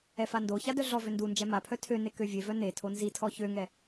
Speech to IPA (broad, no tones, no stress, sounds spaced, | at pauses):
ɛ f a n d o ç a d œ ɮ ɔ v ø n d u n d͡ʒ ɛ m a pʰ œ tʰ ø n e k ø vʲ e v œ n e tʰ o n z i tʰ ɔ ç ø ŋ ɛ